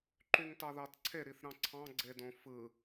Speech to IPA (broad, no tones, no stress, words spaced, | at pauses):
ǃyŋtɑðɑtǀʰe ɾiθɾɑ̃ǀʰɑ̃ ɡ͡ǀedõfɯ